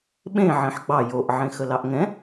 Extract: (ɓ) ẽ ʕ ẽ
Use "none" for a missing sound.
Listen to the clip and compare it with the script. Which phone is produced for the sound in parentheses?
ɓ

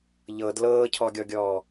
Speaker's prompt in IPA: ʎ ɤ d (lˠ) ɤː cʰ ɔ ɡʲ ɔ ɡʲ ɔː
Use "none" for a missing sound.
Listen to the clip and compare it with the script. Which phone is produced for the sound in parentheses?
l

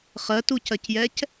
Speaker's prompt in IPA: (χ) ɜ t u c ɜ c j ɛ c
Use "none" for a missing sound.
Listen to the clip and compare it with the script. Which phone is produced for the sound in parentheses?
χ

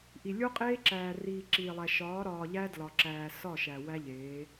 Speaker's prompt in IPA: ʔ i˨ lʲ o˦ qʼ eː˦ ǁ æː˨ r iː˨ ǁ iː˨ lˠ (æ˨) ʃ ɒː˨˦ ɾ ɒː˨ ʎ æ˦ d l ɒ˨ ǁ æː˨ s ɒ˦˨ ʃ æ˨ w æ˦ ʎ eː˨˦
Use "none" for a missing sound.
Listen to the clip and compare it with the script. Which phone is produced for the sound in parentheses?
æ˨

